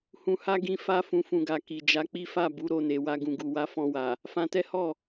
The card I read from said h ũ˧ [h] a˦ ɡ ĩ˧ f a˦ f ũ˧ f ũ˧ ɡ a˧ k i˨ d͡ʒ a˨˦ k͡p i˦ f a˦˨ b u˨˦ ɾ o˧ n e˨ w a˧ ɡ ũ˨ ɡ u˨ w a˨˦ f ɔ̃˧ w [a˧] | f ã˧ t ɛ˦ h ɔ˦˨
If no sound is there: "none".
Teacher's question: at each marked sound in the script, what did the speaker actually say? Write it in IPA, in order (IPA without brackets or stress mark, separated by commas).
h, a˨